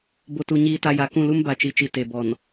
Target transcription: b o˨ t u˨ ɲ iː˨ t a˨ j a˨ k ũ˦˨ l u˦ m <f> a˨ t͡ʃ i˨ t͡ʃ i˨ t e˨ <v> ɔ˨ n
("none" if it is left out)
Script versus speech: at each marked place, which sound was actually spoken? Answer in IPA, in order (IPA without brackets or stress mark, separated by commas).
b, b